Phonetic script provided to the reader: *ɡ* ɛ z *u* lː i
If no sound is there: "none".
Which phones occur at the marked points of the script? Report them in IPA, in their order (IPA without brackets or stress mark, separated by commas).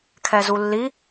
kʰ, u